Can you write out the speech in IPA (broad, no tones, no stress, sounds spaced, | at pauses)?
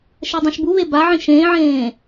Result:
ʃ ɛ dˤ ẽ ʃ b u β e b a ʕ ĩ ʃ ẽː ʕ ẽː